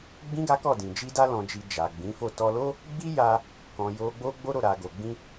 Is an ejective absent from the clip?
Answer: yes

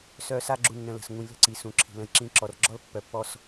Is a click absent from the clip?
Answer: no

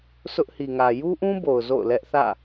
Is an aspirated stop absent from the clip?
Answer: yes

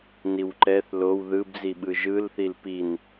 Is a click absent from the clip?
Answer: no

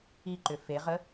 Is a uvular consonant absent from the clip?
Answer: no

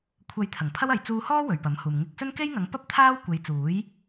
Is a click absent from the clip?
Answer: yes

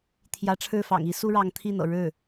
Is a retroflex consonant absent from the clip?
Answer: no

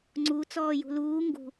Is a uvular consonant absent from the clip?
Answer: yes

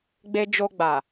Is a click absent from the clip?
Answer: yes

